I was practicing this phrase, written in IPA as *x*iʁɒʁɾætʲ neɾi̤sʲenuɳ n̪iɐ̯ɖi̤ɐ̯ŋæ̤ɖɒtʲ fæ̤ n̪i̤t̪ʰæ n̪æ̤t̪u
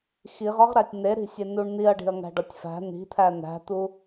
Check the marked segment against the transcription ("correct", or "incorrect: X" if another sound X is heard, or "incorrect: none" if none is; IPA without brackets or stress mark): correct